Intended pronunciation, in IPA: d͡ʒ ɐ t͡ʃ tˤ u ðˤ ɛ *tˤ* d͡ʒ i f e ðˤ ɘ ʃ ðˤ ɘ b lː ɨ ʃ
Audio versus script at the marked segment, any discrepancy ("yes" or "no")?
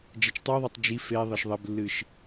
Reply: no